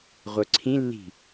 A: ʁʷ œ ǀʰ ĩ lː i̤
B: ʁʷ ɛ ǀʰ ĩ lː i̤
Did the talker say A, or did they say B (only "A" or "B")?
A